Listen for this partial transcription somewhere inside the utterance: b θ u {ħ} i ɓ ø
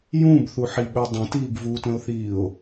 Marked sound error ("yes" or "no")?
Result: no